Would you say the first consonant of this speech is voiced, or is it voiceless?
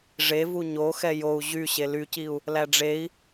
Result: voiced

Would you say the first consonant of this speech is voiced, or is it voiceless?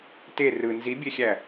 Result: voiceless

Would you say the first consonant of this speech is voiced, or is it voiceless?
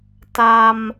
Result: voiceless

